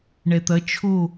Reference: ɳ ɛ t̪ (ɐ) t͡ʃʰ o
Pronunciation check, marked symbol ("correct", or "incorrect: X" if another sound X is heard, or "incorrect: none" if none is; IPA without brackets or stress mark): correct